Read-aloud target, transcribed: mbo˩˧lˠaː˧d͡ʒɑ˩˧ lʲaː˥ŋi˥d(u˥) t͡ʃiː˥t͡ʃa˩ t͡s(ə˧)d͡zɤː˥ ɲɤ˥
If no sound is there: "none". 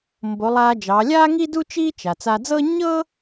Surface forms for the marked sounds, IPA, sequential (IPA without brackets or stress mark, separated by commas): u˥, a˧